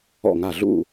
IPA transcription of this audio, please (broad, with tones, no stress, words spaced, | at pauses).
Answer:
ɔ̰˧˩ŋa˧˩ ɮṵ˥˨